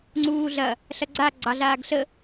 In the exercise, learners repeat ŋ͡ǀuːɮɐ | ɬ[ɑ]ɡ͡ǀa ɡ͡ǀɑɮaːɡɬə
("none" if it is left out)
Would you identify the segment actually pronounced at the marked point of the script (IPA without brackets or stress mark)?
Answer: ɐ